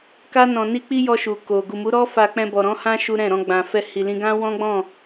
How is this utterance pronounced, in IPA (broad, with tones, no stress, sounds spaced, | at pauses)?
k a˦ n ɔ̃˧ n i˦ k͡p i˦ j ɔ˧ ʃ u˨ k o˨ ɡ u˨ m u˨˦ ɾ ɔ˦ f a˧ k͡p ɛ̃˧ b ɔ˨ ɾ ɔ̃˨˦ h ã˦ ʃ u˦ ɾ ɛ̃˦˨ ɾ ɔ̃˧ ɡ͡b ã˨ f ɛ˧ h i˨ l ĩ˧ ɡ ã˦ w ɔ̃˦ ɡ͡b ɔ̃˦˨